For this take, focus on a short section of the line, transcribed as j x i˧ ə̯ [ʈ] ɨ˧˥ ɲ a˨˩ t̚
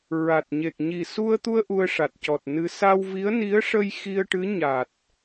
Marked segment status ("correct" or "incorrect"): correct